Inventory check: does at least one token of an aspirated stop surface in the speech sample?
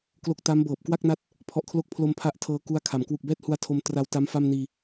yes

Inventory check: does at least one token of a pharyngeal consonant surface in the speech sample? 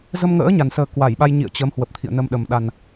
no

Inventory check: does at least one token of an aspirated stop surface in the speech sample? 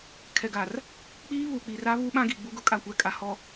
yes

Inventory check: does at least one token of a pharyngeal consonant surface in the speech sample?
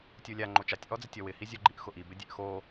no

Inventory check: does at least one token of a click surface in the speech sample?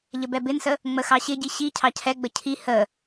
no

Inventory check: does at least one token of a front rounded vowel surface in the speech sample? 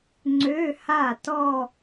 yes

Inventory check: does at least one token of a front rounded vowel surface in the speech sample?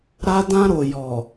no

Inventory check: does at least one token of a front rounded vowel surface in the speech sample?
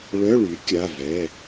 yes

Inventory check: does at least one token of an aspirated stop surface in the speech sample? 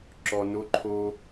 yes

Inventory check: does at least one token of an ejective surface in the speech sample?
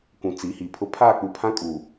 yes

